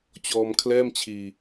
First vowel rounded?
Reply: yes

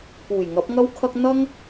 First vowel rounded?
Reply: yes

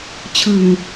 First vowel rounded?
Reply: no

